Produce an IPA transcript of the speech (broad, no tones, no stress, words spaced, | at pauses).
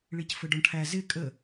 ɭicfəɖɔɳʈʰæ zɪ kʼə